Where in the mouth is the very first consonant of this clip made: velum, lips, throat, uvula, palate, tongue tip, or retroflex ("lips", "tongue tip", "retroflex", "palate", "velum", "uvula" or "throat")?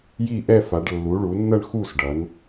palate